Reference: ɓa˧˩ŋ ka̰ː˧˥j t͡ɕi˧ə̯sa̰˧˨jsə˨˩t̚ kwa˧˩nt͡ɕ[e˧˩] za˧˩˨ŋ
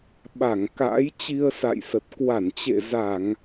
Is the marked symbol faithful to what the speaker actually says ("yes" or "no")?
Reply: no